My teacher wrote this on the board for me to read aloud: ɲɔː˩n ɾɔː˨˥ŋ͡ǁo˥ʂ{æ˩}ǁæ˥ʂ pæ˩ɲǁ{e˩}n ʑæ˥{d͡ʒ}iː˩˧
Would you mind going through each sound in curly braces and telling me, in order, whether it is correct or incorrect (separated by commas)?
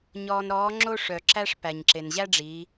incorrect, correct, incorrect